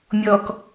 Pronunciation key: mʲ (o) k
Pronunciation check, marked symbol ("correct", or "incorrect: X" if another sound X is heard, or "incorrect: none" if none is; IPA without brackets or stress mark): incorrect: ɔ